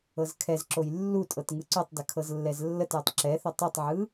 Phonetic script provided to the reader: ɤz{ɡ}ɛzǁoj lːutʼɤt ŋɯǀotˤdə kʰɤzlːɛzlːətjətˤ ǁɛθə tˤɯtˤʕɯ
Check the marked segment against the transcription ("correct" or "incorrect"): incorrect